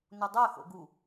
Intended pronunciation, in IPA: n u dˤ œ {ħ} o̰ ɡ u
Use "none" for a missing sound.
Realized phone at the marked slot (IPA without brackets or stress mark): x